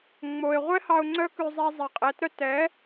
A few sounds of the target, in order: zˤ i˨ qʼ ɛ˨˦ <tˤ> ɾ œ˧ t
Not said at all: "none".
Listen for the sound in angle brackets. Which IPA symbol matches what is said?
t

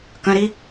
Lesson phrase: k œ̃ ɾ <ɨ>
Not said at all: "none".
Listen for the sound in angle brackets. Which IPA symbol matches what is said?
i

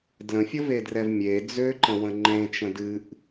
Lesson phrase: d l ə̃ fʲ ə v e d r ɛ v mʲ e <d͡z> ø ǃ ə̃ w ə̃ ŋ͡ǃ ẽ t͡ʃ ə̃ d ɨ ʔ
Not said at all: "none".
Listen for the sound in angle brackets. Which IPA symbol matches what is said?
d͡z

